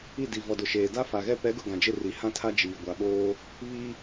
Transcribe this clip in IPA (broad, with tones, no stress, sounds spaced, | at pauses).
i˦˨ d i˨ v ɔ˨ d ʊ˨ ʃ eː˨ d a˦ f a˨ ɣ ɛ˦ p ɛ˨˦ ɡ ʊ˨ ɡ ã˨ d͡ʒ ɪ˦˨ r i˨ h ã˦ tʰ a˦ d͡ʒ iː˨ ɡʷ a˨ ɓ oː˦ | β i˦